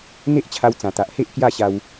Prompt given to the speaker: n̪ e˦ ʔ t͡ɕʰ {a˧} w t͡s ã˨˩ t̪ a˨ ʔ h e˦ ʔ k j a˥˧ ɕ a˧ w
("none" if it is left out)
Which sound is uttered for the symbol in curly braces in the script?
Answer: a˧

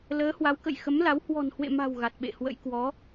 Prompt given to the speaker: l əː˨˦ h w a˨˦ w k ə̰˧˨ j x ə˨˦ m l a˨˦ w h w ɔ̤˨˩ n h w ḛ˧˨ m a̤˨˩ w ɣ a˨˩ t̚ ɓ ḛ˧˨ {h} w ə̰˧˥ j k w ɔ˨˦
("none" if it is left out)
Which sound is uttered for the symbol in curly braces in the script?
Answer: h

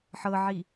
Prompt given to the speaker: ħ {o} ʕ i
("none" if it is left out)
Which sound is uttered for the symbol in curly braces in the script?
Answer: ɤ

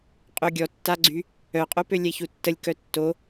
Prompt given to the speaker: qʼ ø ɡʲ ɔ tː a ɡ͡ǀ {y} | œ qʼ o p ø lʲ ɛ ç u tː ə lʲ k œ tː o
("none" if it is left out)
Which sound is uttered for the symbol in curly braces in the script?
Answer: y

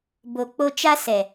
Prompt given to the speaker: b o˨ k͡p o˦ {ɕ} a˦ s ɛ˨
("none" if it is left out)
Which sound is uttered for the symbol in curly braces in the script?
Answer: t͡ʃ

